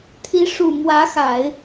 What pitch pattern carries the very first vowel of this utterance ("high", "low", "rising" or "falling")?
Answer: rising